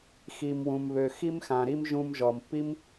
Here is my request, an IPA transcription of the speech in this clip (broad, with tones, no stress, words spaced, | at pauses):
xi˩mwũ˩mβø˩ xi˧mxã˩ɾi˧m ʒũ˧mʒɔ˩mpːi˥m